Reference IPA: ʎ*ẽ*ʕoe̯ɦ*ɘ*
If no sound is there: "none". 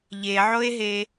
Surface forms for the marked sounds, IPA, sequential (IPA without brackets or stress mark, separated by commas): e, e